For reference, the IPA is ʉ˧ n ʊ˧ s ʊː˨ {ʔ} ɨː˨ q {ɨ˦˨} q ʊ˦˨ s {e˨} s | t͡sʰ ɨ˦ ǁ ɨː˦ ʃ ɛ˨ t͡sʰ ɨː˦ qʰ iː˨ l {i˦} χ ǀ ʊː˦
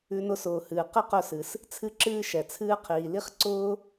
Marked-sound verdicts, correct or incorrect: incorrect, correct, incorrect, correct

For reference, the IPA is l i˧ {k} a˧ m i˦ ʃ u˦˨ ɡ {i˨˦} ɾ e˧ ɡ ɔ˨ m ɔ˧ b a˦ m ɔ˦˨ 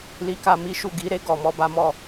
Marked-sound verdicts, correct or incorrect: correct, correct

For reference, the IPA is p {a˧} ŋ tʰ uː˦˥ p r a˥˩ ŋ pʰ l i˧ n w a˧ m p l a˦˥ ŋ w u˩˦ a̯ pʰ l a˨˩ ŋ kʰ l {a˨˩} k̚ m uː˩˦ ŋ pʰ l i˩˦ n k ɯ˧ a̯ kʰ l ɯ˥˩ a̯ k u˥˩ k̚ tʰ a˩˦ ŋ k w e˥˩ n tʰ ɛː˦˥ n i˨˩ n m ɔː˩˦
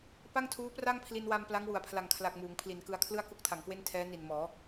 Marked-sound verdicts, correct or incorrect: incorrect, correct

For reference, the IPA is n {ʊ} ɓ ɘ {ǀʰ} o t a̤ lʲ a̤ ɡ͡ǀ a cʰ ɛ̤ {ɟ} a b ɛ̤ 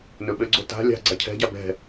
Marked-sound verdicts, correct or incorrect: incorrect, incorrect, correct

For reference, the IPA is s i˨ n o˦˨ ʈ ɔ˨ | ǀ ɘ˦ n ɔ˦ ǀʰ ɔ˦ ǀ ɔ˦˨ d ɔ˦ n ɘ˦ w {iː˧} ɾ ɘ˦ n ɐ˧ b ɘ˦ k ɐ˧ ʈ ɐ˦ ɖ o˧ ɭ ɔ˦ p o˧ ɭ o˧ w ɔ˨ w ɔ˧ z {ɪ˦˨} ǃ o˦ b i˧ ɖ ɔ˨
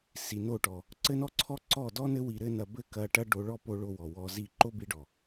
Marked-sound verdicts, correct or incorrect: incorrect, incorrect

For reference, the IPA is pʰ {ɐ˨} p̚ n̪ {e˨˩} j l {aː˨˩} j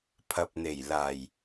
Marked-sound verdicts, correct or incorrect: correct, correct, correct

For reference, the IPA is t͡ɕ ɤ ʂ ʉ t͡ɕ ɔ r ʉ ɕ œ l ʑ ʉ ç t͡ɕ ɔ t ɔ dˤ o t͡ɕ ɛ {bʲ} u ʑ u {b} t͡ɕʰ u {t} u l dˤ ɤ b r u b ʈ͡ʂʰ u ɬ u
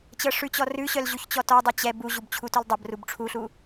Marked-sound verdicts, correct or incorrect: incorrect, correct, correct

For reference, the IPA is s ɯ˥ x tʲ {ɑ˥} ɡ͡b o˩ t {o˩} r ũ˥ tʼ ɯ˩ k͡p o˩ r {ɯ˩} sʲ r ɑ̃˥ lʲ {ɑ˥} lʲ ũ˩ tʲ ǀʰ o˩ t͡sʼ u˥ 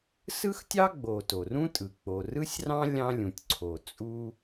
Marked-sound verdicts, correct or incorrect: correct, correct, incorrect, incorrect

